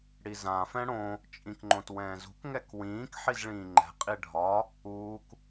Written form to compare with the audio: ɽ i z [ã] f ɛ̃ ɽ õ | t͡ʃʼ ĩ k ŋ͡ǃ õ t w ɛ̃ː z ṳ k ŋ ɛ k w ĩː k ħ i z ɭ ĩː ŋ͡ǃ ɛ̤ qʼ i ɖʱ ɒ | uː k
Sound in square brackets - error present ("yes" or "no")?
no